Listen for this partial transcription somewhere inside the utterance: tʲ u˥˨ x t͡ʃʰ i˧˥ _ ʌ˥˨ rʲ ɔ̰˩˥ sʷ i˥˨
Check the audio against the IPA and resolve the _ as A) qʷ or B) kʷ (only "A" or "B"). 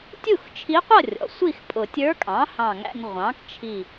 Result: A